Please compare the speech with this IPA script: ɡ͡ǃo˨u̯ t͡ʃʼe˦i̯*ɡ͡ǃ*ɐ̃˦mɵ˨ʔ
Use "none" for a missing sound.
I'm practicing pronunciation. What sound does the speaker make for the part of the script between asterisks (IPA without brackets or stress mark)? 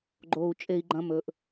ɡ͡ǃ